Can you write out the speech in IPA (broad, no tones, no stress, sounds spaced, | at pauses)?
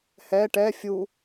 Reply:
h ɛ ʈ ɛ fʲ u